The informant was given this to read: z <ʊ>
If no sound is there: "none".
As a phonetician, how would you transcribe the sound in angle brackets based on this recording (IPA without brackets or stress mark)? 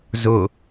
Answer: ʊ